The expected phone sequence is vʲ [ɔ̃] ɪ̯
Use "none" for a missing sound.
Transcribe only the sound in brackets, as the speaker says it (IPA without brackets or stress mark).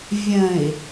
ə̃